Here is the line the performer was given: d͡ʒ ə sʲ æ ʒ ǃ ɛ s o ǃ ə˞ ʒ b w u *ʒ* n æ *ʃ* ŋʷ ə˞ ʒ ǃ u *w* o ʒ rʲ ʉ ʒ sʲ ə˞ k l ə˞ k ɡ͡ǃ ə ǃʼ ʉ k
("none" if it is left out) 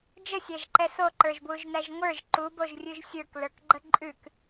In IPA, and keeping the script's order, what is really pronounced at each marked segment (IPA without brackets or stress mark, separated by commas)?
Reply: ʒ, ʒ, b